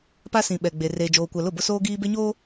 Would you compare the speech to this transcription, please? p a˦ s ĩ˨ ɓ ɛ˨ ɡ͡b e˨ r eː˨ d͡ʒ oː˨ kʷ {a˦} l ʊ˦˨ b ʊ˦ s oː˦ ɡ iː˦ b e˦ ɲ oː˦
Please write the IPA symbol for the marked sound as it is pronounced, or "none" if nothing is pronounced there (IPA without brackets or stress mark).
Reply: a˨